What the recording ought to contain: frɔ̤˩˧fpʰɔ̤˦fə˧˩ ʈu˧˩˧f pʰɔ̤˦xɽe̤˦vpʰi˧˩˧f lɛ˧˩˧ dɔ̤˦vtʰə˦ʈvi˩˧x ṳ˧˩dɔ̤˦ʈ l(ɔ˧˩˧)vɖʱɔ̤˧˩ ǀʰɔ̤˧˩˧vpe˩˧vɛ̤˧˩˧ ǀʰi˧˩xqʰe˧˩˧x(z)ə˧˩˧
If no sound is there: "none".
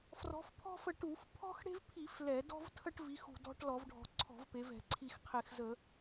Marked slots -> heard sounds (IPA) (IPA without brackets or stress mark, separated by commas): ɔ˧˩˧, z